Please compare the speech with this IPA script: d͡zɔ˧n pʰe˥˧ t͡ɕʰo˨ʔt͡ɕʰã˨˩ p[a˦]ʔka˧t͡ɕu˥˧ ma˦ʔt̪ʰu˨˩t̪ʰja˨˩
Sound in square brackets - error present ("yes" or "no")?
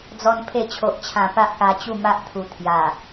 no